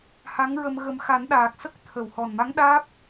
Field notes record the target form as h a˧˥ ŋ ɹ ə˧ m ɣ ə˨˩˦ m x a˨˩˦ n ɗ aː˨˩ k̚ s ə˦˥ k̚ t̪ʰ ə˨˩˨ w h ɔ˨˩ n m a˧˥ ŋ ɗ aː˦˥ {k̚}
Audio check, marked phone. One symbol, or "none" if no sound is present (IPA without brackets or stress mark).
p̚